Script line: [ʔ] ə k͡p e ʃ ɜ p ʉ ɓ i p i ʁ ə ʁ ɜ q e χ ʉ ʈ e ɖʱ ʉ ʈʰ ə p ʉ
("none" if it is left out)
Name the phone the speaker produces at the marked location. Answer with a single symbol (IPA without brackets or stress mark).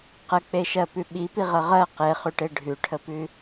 q